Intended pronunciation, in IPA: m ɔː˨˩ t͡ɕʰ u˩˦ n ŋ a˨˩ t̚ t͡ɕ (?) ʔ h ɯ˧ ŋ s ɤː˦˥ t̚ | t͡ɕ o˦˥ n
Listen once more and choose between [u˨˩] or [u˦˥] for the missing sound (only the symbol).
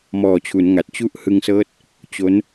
u˦˥